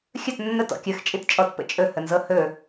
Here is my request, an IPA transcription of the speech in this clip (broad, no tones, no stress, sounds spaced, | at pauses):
xʲ ɵ t nː ə t ɔ̰ kʲ ɵ x t͡ʃʼ i t t͡ʃʼ ɔ t p ə̰ t͡ʃʼ ɵ h ə n z ɤ h ɵ